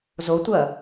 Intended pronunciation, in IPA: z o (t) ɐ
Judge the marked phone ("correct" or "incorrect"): incorrect